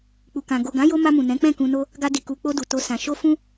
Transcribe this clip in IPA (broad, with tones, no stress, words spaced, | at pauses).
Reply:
k͡pu˨kã˨ ɡo˨ɡã˨˦jo˧ ma˧mũ˨ nɛ̃˨˦ k͡pɛ̃˦˨kũ˧no˦ | ɡa˧ di˨ku˨k͡po˧ du˨to˧sã˨ ʃo˧ fũ˦